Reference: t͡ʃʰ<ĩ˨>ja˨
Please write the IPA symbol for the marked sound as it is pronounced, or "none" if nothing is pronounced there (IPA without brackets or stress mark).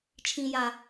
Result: ĩ˨